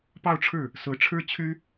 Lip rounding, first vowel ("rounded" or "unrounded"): unrounded